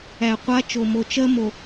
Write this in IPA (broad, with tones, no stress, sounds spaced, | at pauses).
æ˨ qʷ a˦ t͡ʃ o˨ m o˨ t͡ʃ ɜ˦ m o˨